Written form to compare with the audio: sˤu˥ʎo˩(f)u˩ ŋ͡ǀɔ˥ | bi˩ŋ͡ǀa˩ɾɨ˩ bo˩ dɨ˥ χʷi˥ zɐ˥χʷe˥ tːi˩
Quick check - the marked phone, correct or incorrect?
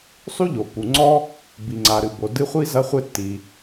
incorrect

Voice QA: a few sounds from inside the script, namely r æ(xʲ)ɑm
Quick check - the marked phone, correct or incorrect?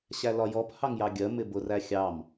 correct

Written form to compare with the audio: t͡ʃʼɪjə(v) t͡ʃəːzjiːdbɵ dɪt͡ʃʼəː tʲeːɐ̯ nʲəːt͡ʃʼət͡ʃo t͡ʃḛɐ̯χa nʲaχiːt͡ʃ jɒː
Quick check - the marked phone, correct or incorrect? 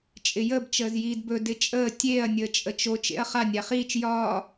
incorrect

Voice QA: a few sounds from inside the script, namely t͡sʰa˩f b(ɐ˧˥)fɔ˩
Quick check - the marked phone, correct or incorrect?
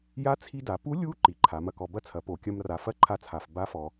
incorrect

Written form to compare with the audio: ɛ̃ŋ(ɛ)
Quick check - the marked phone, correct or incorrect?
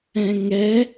correct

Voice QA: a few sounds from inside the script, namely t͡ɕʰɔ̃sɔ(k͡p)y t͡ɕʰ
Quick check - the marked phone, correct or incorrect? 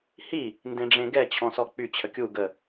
correct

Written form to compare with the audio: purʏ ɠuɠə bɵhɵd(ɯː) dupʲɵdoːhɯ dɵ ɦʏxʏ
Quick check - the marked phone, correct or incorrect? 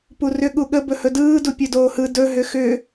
correct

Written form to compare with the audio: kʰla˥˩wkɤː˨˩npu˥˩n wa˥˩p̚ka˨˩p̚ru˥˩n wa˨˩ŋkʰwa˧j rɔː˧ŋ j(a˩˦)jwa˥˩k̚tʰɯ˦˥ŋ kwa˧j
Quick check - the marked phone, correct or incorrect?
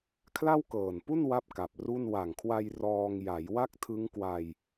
correct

